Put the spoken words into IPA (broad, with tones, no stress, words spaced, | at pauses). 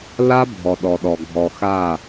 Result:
la˦bʱɔ˨ɗɔ˨ɗɔ˨ ɡʱɔ˨ xa˦˨